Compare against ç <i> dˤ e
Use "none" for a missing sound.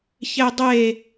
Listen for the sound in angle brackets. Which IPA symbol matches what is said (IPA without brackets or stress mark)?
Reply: e